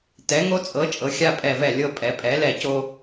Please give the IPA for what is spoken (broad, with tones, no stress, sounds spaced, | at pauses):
t ɛ˨˦ ŋ o˦ t͡sʼ ɤ˨˦ t͡ʃʼ ɤ˨˦ xʲ a˦ pʼ ɛ˦˨ v ɛ˦˨ lʲ ɤ˦ pʼ ɛ˨˦ pʼ ɛ˨˦ l ɛ˦˨ c o˦